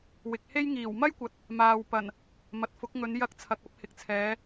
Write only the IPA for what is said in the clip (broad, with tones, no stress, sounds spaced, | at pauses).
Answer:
w ɪ˨ k̚ h e˥ j ŋ iː˨˩ w m ɐ˥ j kʷ ɐ˨ t̚ | m aː˨ w p ɐ˨˩ n | m ɐ˨ t̚ f ʊ˨˥ k̚ ŋ ɵ˨˧ n j ɐ˧ k̚ t͡sʰ ɐ˨ k̚ ɐ˧ p̚ h ɪ˨ k̚ t͡sʰ ɛː˨˧